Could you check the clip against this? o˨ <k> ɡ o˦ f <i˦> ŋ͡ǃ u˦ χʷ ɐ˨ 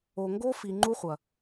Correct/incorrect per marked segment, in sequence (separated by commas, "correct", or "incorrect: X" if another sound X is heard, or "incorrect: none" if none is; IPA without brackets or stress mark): incorrect: ŋ, incorrect: i˨